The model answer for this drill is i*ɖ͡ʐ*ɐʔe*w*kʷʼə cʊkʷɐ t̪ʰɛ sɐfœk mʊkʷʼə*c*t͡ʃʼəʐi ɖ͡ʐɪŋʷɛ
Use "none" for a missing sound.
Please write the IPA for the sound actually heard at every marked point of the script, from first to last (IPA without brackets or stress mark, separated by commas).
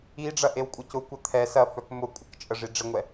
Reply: ɖ͡ʐ, w, k